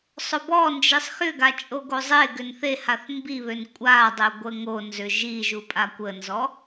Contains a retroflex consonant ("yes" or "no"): no